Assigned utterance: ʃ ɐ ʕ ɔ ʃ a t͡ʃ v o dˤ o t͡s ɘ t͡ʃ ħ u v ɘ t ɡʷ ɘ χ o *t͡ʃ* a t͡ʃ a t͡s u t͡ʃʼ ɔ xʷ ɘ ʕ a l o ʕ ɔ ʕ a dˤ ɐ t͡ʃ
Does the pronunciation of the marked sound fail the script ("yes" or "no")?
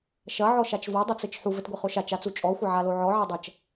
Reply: yes